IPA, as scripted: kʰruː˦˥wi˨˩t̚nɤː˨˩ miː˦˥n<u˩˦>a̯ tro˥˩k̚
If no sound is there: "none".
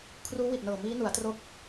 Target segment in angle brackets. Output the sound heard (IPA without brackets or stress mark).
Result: u˩˦